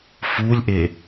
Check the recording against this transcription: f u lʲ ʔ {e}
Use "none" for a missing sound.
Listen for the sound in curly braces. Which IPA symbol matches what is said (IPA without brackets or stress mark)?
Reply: e